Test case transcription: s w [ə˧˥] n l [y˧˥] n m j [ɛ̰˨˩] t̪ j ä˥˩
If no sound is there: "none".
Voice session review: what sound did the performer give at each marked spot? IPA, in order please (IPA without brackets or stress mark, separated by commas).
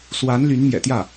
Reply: a˧˥, y˧˥, ɛ̰˨˩